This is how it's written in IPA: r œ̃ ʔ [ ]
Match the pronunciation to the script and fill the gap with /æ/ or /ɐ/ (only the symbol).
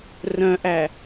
æ